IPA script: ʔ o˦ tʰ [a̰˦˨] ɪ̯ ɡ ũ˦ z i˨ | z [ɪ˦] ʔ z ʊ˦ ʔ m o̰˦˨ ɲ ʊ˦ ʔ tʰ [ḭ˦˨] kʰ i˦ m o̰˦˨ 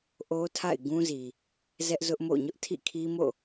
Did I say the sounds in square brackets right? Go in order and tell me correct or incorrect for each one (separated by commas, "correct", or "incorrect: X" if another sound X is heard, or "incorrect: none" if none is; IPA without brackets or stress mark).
correct, incorrect: ɛ˦, correct